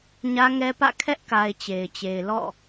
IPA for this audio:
ɲä˦ŋɛ˦pä̰˦˨ kʰɛ˦ʔka˨ɪ̯ t͡ɕe˨ɪ̯t͡ɕe˨ɪ̯ lɔ̰˦˨

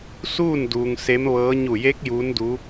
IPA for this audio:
suː˥˨nduː˩ŋ se˧˥mʋɤː˧˥ ɲu˧˩je˧˥k̚ juː˧˥ndu˧˥

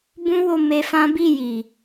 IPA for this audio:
bũ˦wo˧ me˧fã˦ bi˦˨ji˨

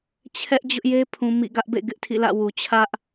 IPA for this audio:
t͡ɕʰɛ˦ʔ d͡ʑʊ˦ʔje˦pʰũ˨ mḭ˦˨ ɡä˦ʔbḛ˦˨ ɡɪ˦ʔtʰḭ˦˨lä̰˦˨wu˨ t͡ɕʰä˦ʔ

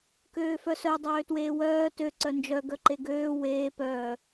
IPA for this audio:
køːfœsœ dˤøːtweːwœː tø ǀœnd͡ʒœ ɡœǃeɡøː weː pœː

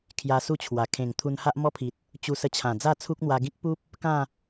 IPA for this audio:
kʰja˧su˥˧t͡ɕʰwa˨˩ kʰẽ˨˩ŋ t̪ʰu˧nha˦ʔmɔ˦pʰi˨t̚ | t͡ɕu˧sə˧t͡ɕʰã˨˩ d͡za˥˧t͡sʰu˦k̚n̪wa˧ ɡĩ˦k̚pu˦p̚ | kã˥˧

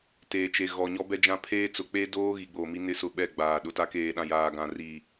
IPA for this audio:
teː˨t͡ʃe˨ ɣɔ˨ ɲɔ˦bɛ˦d͡ʒã˦ pʰeː˦t͡sʊ˨ k͡pe˦doː˦ ɣi˨ɡ͡boː˨mi˦nɪ˦ sʊ˦ɓɛ˦˨ɡ͡baː˨ ɗʊ˨ta˦keː˨ɗã˨ jaː˨ɡã˨ ri˨

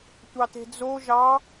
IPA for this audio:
tʷɑte̤d͡zo ʒɑ

